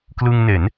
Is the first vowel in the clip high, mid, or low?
high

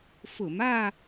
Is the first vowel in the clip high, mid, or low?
high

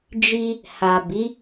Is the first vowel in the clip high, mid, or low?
high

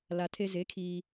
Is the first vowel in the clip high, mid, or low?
low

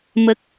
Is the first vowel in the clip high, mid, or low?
mid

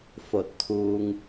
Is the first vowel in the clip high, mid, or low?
mid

